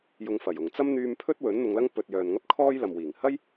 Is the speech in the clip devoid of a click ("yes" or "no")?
yes